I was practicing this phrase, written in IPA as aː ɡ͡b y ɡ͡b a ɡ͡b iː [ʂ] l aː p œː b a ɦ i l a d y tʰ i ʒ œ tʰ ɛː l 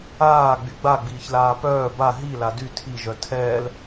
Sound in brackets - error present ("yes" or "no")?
yes